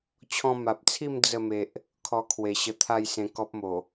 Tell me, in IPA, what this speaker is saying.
t͡ɕʰ ɔ̃˧ m a˨ p̚ t͡sʰ i˥˧ m d͡z ə˥˧ m e˨ ʔ | kʰ ɔ˧ kʰ w e˨˩ ɕ ə˧ t̪ʰ a˥˧ j s ẽ˧ k ɔ˦ p̚ m o˨˩

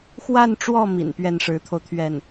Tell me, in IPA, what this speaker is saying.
x w a˥˧ n ʈ͡ʂ w ɔ˥˩ m ḭ˨˩ n p ɥ ɛ˥˩ n ʂ ɻ̩˧˥ t̪ʰ o˧ ʊ̯ t̪ʰ ɥ ɛ˥˩ n

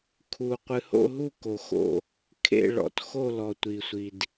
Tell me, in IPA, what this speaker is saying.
kʰ u˩ qʷ ɨ˩ h o̰˧˩ ɦ u˧˩ k o˩ x o̰˧˩ | kʰ ḛ˧˩ ɭ ɔ̰˩ t x o˧˩ l ɔ˩ tʷ i˩ sʷ i˩ d

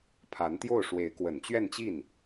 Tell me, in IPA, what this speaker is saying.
pʰ a˧˥ n t̪ j o˥˩ ʊ̯ ʂ w e˧˥ ɪ̯ k w ə˨˩ n t͡ɕ ɥ ɛ˥˧ n t͡ɕ i˥˩ n

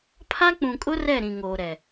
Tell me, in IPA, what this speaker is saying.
pʰ a˦ k͡p ũ˨ kʼ ʊ˦ r ɛ˦˨ ɾ ĩ˨ ŋ oː˨ ɾ ɛ˨

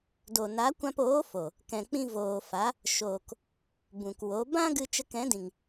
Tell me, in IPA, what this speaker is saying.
d o˨ n a˨˦ kʷ ã˧ p oː˨˦ f o˨ | k ɛ̃˧ k͡p ĩ˦ v oː˨ f a˨˦ | ʃ oː˨ k | b ũ˨ k w o˨˦ b ã˦ ɡ ɨ˧ t͡ʃ ə˧ k ɛ̃˨˦ d ĩ˨ ŋ

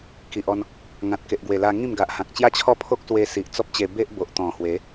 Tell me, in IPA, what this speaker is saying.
k i˨ ʔ ɔ˧ n | ŋ ã˨ t̚ k e˨ ʔ ɡ w e˨˩ l a˧ ŋ ĩ˥˧ m ɡ a˨ ʔ h ã˨ k̚ t͡ɕ j a˥˧ t͡ɕʰ ɔ˥˧ pʰ o˦ k̚ s w e˧ s i˨ ʔ t͡s ɔ˦ p̚ t͡ɕ e˧ b e˦ ʔ b o˨ ʔ t̪ ɔ̃˨˩ h w e˨˦

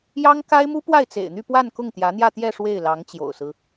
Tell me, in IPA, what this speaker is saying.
j ɑ˥ ŋ k a˥ ɪ̯ m u˥ p w a˥˩ ɪ̯ t͡s ḛ˨˩ ɪ̯ n̪ y˥˧ p w a˥˧ n k ʊ˥˩ ŋ t̪ j ä˧˥ n̪ j ä˥˧ t̪ j ɛ˥˧ ʂ w e˥˩ ɪ̯ l ɑ˧˥ ŋ t͡ɕ j o̰˨˩ ʊ̯ s ɹ̩˦

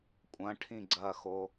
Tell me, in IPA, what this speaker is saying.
kʷʼ ɐ̃ ʈʰ ĩ ɡ͡ǀ ɐ x o

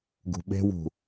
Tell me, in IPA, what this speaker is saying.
ɡ ṳ ɓ e̤ w ṳ

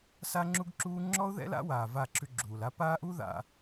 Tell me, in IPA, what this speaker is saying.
s a˦ ŋ͡ǁ u˦ ɡ ǁ uː˦ ŋ͡ǁ ɔ˦ ʊ̯ ð ɛ̰˦ l a̰˦ w aː˨ v a˦˨ ǁʰ ʉ˦ ɡ͡ǁ uː˨ l a˦ p aː˦ ʔ u˦ ð a̰˨

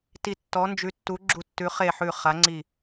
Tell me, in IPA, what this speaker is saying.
t i˦˨ tː ɔ˧˥ n d͡ʒ ʉ˧˥ tː u˧˥ ɡ͡ǁ u˦˨ tː ʉ˧˥ χ e˦˨ ħ ʉ˦˨ χ a˧˥ ŋ͡ǀ i˦˨

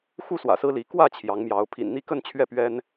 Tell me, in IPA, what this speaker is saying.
x u˥˨ s w ä̰˨˩ s ɹ̩˦ l i˨˦ k w ä˥˨ t͡ɕʰ j ɑ˨˦ ŋ m j ɑ˨˦ ʊ̯ pʰ ḭ˨˩ n n̪ i˥˨ k ə˥˨ n t͡ɕʰ ɥ ɛ˥˨ p ɥ ɛ˦ n

